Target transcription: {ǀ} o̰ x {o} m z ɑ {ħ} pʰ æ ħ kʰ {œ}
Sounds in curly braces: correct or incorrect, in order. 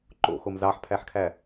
incorrect, correct, correct, incorrect

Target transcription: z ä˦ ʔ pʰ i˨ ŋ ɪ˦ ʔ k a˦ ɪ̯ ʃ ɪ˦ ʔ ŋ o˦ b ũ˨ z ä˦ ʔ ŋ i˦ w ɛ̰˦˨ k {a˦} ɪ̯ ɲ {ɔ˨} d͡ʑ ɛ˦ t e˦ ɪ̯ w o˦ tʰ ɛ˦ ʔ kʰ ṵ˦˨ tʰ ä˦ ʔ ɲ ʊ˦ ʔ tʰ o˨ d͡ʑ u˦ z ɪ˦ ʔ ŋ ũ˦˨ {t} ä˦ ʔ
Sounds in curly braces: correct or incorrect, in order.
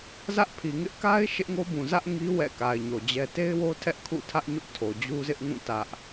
incorrect, incorrect, correct

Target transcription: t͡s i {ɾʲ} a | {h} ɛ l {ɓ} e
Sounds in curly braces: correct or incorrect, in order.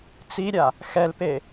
correct, incorrect, incorrect

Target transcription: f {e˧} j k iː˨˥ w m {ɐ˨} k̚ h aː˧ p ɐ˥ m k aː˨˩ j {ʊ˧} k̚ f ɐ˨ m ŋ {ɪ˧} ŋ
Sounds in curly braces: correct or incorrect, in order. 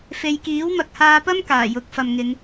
correct, correct, incorrect, incorrect

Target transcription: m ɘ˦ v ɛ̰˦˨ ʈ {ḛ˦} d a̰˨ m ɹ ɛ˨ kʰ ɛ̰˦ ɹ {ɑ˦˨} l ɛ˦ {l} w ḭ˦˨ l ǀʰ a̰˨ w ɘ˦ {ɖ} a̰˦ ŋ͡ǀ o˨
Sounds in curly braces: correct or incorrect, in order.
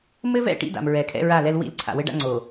incorrect, incorrect, correct, correct

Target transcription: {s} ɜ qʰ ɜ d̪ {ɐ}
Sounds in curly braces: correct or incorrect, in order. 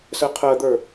correct, incorrect

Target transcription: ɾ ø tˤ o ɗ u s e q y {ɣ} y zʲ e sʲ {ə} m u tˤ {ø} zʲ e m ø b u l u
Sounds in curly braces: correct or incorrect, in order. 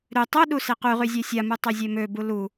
incorrect, incorrect, correct

